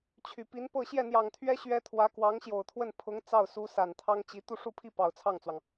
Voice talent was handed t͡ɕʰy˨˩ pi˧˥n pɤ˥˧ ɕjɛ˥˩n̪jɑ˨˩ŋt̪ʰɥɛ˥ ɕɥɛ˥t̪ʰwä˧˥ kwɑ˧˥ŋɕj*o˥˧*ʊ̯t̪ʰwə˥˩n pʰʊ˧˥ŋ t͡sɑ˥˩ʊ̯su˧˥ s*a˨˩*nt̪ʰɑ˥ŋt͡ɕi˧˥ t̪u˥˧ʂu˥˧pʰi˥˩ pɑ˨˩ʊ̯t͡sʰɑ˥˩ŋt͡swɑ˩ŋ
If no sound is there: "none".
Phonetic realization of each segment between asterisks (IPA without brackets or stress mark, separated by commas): o˨˩, a˨˩